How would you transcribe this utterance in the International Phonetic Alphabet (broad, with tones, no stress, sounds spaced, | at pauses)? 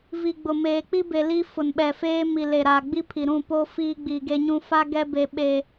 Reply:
v i˨ ɡ͡b ʊ˨ m eː˨ k͡p i˦ b e˨ l i˦ f ʊ˨ n ɓ ɛ˨ f eː˦ m i˨ l e˨ ɾ aː˨ ɡ͡b i˦ pʰ i˨ ɾ ũ˦˨ p o˦ f iː˦ ɡ͡b iː˨ ɡ e˦ ɲ ũ˦ f a˦ ɡ ɛ˦ b e˦ ɓ eː˦